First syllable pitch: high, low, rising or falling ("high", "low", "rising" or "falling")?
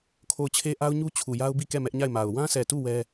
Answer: falling